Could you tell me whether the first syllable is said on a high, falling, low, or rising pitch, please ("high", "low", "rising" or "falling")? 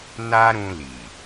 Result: high